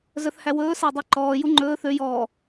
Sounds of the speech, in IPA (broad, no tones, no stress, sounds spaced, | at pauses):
z œ θ h æ w ɵː s æ dˤ e ǃ ɔː j u ŋ͡ǃ ɵː θ ø j ɔ